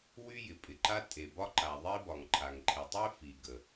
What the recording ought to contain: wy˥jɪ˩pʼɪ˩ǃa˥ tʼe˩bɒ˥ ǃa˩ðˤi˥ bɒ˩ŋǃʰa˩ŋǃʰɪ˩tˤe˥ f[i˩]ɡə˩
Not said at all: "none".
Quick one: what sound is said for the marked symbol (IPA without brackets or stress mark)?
i˩